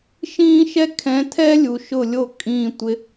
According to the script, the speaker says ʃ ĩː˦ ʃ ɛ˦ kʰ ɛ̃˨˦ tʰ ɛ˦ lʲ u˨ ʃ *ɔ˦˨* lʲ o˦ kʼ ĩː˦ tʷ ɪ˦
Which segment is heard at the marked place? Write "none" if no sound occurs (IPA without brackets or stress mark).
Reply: ʊ˦˨